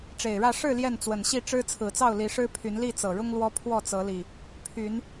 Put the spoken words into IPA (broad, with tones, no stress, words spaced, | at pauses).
ʈ͡ʂe˨˩ɪ̯ɻä˥˨ ʂɻ̩˥˨ ljɛ˥˨nt͡swə˨˩nɕi˥˨ ʈ͡ʂɻ̩˦ t͡sʰɹ̩˨˩t͡sɑ˥˨ʊ̯ li˨˦ʂɻ̩˦pʰy˨˦n li˥˨t͡sɤ˨˩ɻʊ˦ŋ lwɔ˦pʰwɔ˥˨t͡sɤ˨˦li˨˩ | pʰy˨˦n